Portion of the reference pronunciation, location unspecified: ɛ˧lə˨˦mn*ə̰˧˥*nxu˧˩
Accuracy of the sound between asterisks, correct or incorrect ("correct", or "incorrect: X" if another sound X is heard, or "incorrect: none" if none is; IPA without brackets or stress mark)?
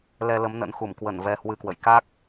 correct